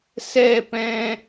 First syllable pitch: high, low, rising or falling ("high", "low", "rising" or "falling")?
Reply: falling